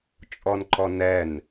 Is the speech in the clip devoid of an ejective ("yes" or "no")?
no